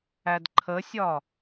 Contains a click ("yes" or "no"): yes